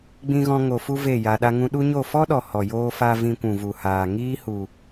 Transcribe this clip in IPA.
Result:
ɡ͡b ĩ˦ ɣ ɔ̃˦ ŋ o˧ f u˦ v e˦˨ j a˧ ɗ a˦ ŋ ũ˦ ɗ u˦ ɲ o˦˨ f ɔ˦ ɗ ɔ˨ h ɔ˨ j oː˧ f a˧ v ĩ˧ kʷ ũ˨ v u˨ h aː˨ ŋ iː˦ h u˨

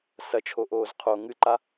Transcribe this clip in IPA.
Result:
s ɐ t͡ʃʰ o ʔ oː z qʰ o ŋ ɨ ǃ a

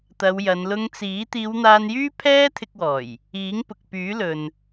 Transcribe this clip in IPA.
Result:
t̪ ɐ˨˧ w j ɐ˨˧ n l ʊ˧ ŋ t͡s iː˨˥ t̪ iː˨˧ w n̪ aː˧ n j yː˥ pʰ ɛː˥ t̪ʰ ɪ˧ k̚ w ɔː˨˩ j | iː˨˥ ŋ p ʊ˨ k̚ p yː˨˥ l ɵ˨ n

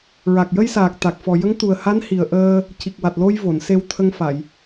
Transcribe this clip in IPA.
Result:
ɹ a˨˩ k̚ j ə˧ j s aː˨˩ k̚ t̪ a˨˩ k̚ f ɔ˨˩ j ə˧˥ ŋ t̪ u˨˩ ə̯ h a˧˥ n h i˨˩ ə̯ ʔ əː˧ | c i˨˩ k̚ w a˨˩ t̚ l o˧ j v o˨˩˨ n s e˧ w t̪ʰ ə˧ ŋ f a˨˩˨ j

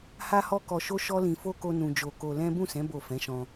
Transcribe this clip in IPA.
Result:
h a˦ h ɔ˦ k ɔ˧ ʃ o˦ ʃ ɔ˦ l ĩ˧ f o˦ k o˦ n ũ˧ d͡ʒ o˧ k o˧ l ɛ̃˦ b ũ˦˨ s ɛ̃˨˦ b o˦˨ f ɛ̃˨˦ ʃ ɔ̃˧

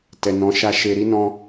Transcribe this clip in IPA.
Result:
t ɛ˨ n ɔ̃˨˦ ʃ a˧ ʃ e˧ ɾ i˦ n ɔ̃˦

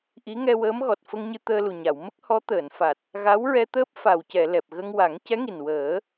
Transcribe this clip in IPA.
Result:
ʔ i˧˥ ŋ ɛ˧ w əː˧˥ m ɣ ɔ˨˩ t̚ f ə˧ ŋ ɲ ɨ˧ t̪ əː˧ l u˨˩ ɲ a˨˩˨ w m ə˦˥ k̚ h ɔ˧˥ t̪ əː˨˩˨ n f a˨˩ t̚ | ɣ a˧˥ w ɹ ɛ˧ t̪ əː˦˥ p̚ f a˨˩ w c ɛ˨˩˨ l ɛ˨˩ p̚ ɣ ə˧ ŋ w a˨˩˦ ŋ c ɛ˧˥ ŋ i˨˩ n w əː˨˩˦

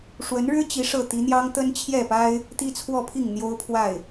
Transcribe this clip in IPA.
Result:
ʂ w ə˧˥ n ɻ ɻ̩˥ t͡ɕ i˧˥ ʂ ɤ˥˩ t̪ i˧˥ n̪ j ɑ˥ ŋ t̪ ə˥ n t͡ɕʰ j ɛ˥˩ p a˥ ɪ̯ | t̪ i˥ t͡sʰ w ɔ˥˧ pʰ i˥˩ ŋ n̪ j o˥ ʊ̯ pʰ w a˥˩ ɪ̯

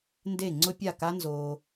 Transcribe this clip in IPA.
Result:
n d e˥˩ ŋ͡ǀ ʊ˦˥ pʲ a˥˩ k a˦˥ n z oː˨

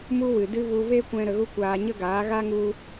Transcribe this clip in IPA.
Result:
m u˦ w ɨ˨ d ɨ˦ v u˧ v e˦ kʷ ɛ̃˧ ɾ ə˧ ɣ u˦ kʷ aː˧ ɲ ə˦ ɡ aː˨˦ ɣ a˦ ŋ u˧

